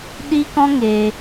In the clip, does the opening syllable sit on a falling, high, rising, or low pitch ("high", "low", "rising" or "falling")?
high